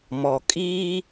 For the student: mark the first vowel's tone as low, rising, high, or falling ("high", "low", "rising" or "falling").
low